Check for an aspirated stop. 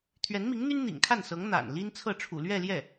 present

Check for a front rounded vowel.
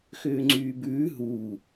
present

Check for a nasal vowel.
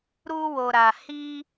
absent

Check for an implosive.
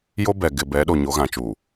present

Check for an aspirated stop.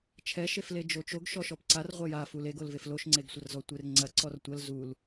present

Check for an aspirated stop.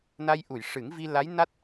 absent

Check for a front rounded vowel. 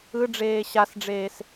absent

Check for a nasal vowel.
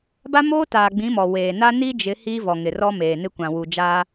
present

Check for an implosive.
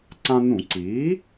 absent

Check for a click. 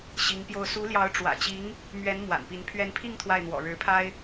absent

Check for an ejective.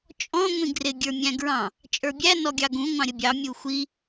present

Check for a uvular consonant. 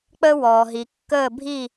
absent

